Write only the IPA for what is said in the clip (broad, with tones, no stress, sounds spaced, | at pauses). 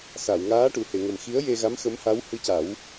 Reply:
s a˨˩˨ w ŋ aː˧˥ ʈ u˨˩˨ h e˨˩˨ ŋ ə˨˩ m x i˧˥ ə̯ j e˧ ɣ a˧˥ m x ə˧˥ m h a˧˥ w h ɨ˧ c a˨˩˦ w